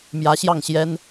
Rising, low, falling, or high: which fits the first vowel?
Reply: rising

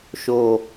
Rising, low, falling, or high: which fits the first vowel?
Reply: falling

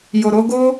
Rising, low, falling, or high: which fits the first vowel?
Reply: low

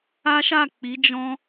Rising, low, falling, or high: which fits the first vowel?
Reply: high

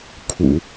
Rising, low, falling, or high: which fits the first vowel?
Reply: low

